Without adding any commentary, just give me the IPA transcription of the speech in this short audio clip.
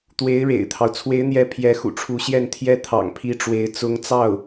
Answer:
t̪we˧˥ɪ̯ ɻḛ˨˩ɪ̯t̪ʰɑ˦ʊ̯ t͡sʰwe˧˥ɪ̯n̪jɛ˧˥ pʰjɛ˧˥xṵ˨˩ʈ͡ʂʰu˧˥ ɕjɛ˥˩nt̪ʰjɛ˥ t̪ʰɑ̰˨˩ŋpʰi˥ʈ͡ʂwe˧˥ɪ̯ t͡sʊ˧˥ŋt͡sɑ˥˩ʊ̯

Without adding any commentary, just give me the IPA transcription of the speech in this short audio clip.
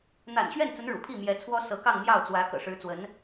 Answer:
n̪a̰˨˩nɕɥɛ˥˩nt͡sə˧˥n ɻṵ˨˩pʰi˥˩ mjɛ˧˥t͡sʰwɔ˥ sɤ˧˥kɑ˥˧ŋ n̪jɑ˥˩ʊ̯t͡swä˧˥ kɤ̰˨˩ʂɻ̩˧˥t͡swə˧˥n

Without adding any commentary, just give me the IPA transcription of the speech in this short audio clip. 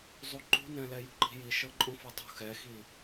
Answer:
zˤuǃṳnɛ̃ lɛjṳǃi̤ji ʃɤǃʼũfɤtˤṳ xɛxi

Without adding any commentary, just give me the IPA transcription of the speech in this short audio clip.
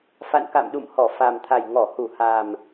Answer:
fa̰˧˨nka̰˧˨mɗṵ˧˨mhɔ˧˩ fa˨˩mt̪ʰa˨˩j ŋɔ˧˩hu˧˩ha˨˩m

